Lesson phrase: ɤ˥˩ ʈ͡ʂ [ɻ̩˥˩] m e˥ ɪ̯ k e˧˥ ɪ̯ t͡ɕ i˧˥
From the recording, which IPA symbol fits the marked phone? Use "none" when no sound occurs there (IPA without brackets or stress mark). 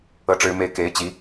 ɻ̩˥